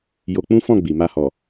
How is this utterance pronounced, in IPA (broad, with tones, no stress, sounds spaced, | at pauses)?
j o˧ k͡p ũ˦ f ɔ̃˦˨ ɡ͡b i˨ m a˧ h ɔ˨